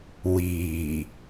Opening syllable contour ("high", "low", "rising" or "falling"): low